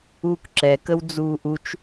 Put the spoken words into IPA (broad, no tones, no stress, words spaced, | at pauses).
uːkǁɛkəw d͡zuːʔut͡ʃ